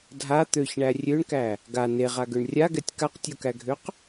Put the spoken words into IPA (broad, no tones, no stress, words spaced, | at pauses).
dʱa t̪øçɳæ rʲøɳkæ | ɡa neʁaɡøɳ rʲaɡɛtʲ kaqtʲokæɡʱøq